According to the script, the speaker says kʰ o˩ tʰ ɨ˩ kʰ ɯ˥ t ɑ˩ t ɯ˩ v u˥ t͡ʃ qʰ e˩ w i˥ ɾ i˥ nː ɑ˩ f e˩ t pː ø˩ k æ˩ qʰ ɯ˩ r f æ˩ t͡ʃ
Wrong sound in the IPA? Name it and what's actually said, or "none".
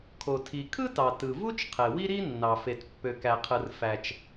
ɨ˩ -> i˩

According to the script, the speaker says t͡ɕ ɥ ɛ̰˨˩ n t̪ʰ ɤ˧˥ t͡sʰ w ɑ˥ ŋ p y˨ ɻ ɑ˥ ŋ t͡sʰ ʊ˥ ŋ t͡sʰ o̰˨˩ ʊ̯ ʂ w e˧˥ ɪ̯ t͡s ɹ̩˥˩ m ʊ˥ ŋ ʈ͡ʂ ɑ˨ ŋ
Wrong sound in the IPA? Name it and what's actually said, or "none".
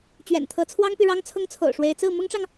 none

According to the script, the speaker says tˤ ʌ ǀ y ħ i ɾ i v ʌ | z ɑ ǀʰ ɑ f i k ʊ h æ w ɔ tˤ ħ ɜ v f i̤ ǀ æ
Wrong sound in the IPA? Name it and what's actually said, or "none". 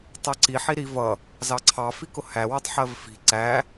y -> i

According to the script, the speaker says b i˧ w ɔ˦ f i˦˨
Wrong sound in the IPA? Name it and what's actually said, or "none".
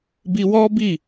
f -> b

